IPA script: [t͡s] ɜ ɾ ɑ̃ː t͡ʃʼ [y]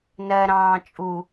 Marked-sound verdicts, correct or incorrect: incorrect, incorrect

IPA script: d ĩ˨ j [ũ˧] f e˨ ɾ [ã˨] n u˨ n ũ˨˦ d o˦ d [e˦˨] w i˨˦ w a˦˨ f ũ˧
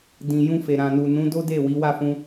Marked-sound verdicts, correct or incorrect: correct, correct, correct

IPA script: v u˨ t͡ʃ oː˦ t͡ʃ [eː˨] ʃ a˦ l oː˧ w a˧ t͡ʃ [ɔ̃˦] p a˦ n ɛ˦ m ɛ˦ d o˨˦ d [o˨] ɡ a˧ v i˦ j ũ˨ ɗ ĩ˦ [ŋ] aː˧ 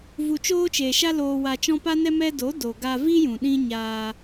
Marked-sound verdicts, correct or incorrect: correct, correct, correct, incorrect

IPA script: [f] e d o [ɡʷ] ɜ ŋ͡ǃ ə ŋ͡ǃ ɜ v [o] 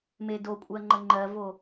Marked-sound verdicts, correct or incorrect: incorrect, incorrect, correct

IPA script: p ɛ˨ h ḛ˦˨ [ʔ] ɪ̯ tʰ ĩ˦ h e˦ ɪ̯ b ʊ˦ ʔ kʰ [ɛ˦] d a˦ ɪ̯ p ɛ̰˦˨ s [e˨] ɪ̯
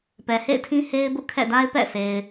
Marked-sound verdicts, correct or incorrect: incorrect, incorrect, correct

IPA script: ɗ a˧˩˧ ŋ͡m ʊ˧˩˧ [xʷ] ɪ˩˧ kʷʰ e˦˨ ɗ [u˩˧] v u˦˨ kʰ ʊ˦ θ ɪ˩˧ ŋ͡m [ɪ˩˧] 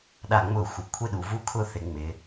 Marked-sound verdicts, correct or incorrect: correct, correct, correct

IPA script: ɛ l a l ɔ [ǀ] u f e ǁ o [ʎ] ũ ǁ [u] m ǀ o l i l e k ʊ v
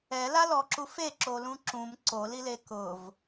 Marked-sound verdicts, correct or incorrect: incorrect, incorrect, incorrect

